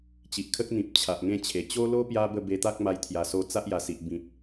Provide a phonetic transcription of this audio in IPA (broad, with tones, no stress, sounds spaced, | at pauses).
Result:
t͡ɕ i˨ ʔ kʰ ə˦ k̚ n̪ ĩ˨ p̚ t͡ɕʰ a˨ ʔ ŋ ẽ˥˧ t͡ɕʰ e˨˩ t͡ɕ o˦ l o˦ p j a˦ b ə˥˧ b e˧ t̪ a˦ k̚ m a˧ j t̪ʰ j a˨˩ s o˧ t͡s a˦ ʔ j a˨˩ s i˨ ʔ b ĩ˨ p̚